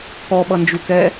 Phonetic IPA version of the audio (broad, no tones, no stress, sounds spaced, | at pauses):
k ɔ ɓ ʌ n d͡ʒ u k ɛ